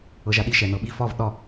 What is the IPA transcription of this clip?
ɤ ʒ a ɗ i ʃ ɛ n ɤ ɓ i f ɒ v ɗ ɒ

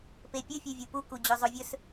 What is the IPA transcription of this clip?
p e pʲ ɨ fʲ ʉ vʲ u p u k u d͡ʑ ɵ zˤ o vʲ ɵ s

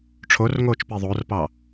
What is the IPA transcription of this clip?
ʈ͡ʂʰ o r ŋ oː t͡ʃ p e ðˤ o r p ɑ

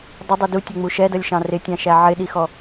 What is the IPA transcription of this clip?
dˤ ə dˤ i d u tʲ ʊ ŋ͡m u ʃ ɛ d ʌ lʲ ʃ ɑ̃ r ɪ tʲ ɑ̃ ʃ æ ʕ ɪ ɗ i x ɔ

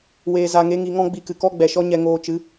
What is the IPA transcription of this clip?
w eː˧ z a˧ ŋ e˦ ŋ i˧ ŋ ɔ̃˦ ɡ͡b i˧ k ɨ˨ k ɔ˦ ɡ͡b ɛ˨ ʃ ɔ˦ ɲ ɛ˧ ŋ oː˧ t͡ʃ ɨ˨˦

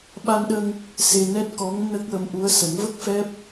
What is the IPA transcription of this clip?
ɓ a˧ n ɗ ə˧ ŋ | s e˧ n ɛ˦˥ t̚ k ɔ˧˥ ŋ n ə˦˥ k̚ w ə˧˥ m ʔ u˧˥ ə̯ s ə˨˩˦ ŋ v ə˦˥ k̚ f ɛ˦˥ p̚

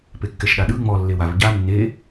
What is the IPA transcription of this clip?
p e kː ɛ ʃ ɗ a ɗ ɯ ŋ͡m ɔ lː e w a v ɟ a nː e

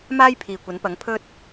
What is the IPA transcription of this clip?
m aː˥ j pʰ iː˨ kʷ ɐ˨˥ n p ɐ˨˥ ŋ pʰ ɵ˥ t̚

